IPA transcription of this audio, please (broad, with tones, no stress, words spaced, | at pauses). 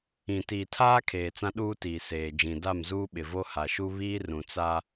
ĩ˨tiː˨tʰaː˦ kʰeː˨t͡sã˦ ɗuː˦tiː˨seː˨d͡ʒĩ˨ da˦˨mzuː˦ɓɪ˨ vo˦ha˨ʃu˦ βiː˦rũ˨ t͡sa˦